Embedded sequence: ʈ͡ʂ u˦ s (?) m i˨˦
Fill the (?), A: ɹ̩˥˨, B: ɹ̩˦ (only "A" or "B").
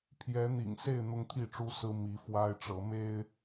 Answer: B